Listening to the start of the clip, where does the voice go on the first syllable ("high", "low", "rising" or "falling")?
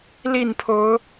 falling